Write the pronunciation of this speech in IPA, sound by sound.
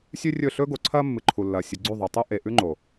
sʲʉ˦rʲɵ˦˨ ɬɵː˦ɡo˨ǀʰɐː˦ mːɨ˨ǃʰu˨lːɐː˨ sʲɨ˨ɡ͡ǀʉ˦˨ðˤɵ˨tˤo˦ ʔe˨ʔʉ˦ŋ͡ǃo˨

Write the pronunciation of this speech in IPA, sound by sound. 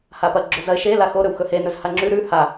hapɐ ɡ͡ǁɵzɐɪ̯ ʃe laxo ɾɵwxɵhe nɵzhaŋ͡ǁʉ ɾʉ ha

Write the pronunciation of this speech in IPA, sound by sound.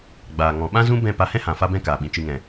ɡ͡baː˨ŋɔ̃˨ ɓã˦zũ˦ bɛ̃˦˨pa˧ hɛ̃˦hã˨ fa˦bɛ̃˦kaː˨ɓĩ˨ t͡ʃɨ˨ŋɛ̃˨

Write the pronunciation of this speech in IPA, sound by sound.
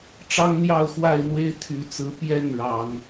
ʈ͡ʂɑ˦ŋn̪jɑ˥˨ʊ̯xwa˥˨ɪ̯n̪we˦ɪ̯ t̪ʰy˨˦t͡sɹ̩˨˦ pjɛ˥˨n ɻɑ˨˦ŋ

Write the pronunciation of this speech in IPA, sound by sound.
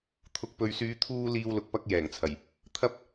t̪ʰʊ˨k̚pɵ˨ɥsyː˨˧ t̪ʰuː˥ liː˥wlʊ˧k̚ pɐ˥k̚jɛː˨˩ŋt͡sʰɐ˨˩j | t̪ʰɐ˥p̚

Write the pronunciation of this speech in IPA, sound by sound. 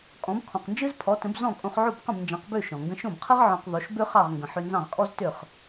kʼɔ̃˩˥bkʰɔ̃˩qnd͡ʒɯ˥z pʰɔ˩˥tə̃˩˥b zɔ̃˥˩kʼõ˧χʕo˥˩b qə̃˥˩bnd͡ʒɑ̃˩˥qbø˥˩ ʃɔ̃˩ ŋɡə̃˧ʃõ˥˩bqʰɯ˥ʁ ʕɔ̃˧q ðˤo˩˥ʃbø˥ χɑ˥˩ʁŋɡə̃˩ ħø˧nzɑ̃˥˩ʁkʼɔ˥z tø˥˩χ

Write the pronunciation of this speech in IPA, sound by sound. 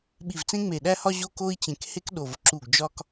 ɓi˧˩vt͡sẽ˥ ŋ͡me˧˩ɗæ˥hɒ˥ ʑo˥ko˥i̯t͡ɕẽ˧˩k he˥kɗo˧˩vǁu˧˩ɡ d͡ʒɒ˥k

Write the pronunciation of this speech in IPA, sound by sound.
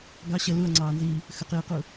ɡɑ ɕə luɐ̯ŋ͡ǀɑːnziː | xəq iːqu

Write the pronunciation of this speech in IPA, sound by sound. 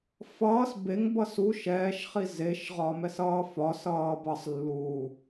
fʌːs beŋbʌ su ʃɛːʃχi zeʃʁɒmɛsʌː fɒsʌː bʌsˤlːuː

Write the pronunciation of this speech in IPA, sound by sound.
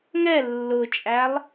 ŋɛ lːʊt͡ʃʼælˠ

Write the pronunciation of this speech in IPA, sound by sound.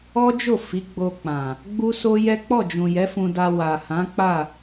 ɔ˦d͡ʒo˦˨ fi˨˦ɡ͡bo˧k͡pã˨ | ɡ͡bu˦so˦ jɛ˦ k͡pɔ˦˨d͡ʒũ˨ jɛ˨˦fũ˧da˧ wa˨ hã˨˦k͡pa˦˨

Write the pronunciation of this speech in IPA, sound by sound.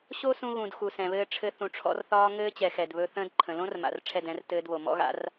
ɕo˦sũ˧ɣũ˨d xu˨sɛ̃˨βɘː˧ʈ͡ʂʰɘ˧ θũ˨ʈ͡ʂʰɔ̰˧rθɒː˧ ŋɘː˦t͡ɕɛ˨xɛ˨d βɵ˧ θə̃ː˧dǃʰə̃˨lõ˦rma̰˨r ʈ͡ʂʰɛ˦˨dɛ̃˨˦r tɘː˧dβo˨mɔ̰˦ɣa̰˦r

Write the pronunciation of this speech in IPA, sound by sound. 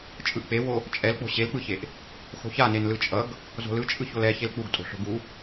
t͡ʃʼɯʔk͡pewo | t͡ʃʼɛlk͡po̤ ɕelk͡pɯçeʔ | xo̤çanen lɯt͡ʃʼʌɡ | zo̤lɯt͡ʃʼɯ çolɛçel k͡puɡtʼo̤ ɬo̤ɡu

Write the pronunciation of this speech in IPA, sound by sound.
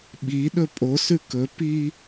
ɓi ɗɵpʼosʉ kɵpi

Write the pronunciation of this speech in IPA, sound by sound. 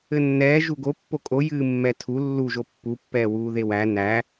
ɘnːɛː ʒuɡo pːokʼo jɨːmːɛtʰu lːu ʒopːu pːɛːwuːðewæ næ

